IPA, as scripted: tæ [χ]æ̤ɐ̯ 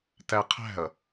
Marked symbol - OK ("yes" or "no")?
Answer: no